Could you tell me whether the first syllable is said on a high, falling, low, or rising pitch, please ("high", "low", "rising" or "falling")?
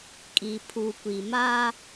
low